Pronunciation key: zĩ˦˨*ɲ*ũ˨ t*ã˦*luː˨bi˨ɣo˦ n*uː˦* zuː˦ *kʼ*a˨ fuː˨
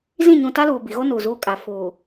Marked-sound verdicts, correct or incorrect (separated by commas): correct, incorrect, incorrect, correct